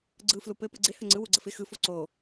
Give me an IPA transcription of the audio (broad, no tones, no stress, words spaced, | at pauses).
ɡ͡ǀɯ flupɘ pɯɡ͡ǀɪ həŋ͡ǀɯ wuɡ͡ǀəfɪ xɯ foǀo